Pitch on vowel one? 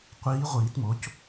rising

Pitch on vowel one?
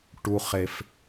high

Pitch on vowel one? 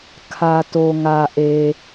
low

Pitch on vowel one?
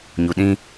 low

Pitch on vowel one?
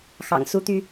low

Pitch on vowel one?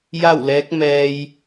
falling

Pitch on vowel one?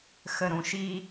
low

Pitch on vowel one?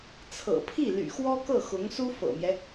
low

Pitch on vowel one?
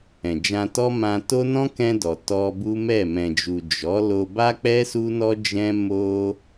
low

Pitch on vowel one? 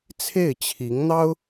falling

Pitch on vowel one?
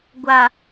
low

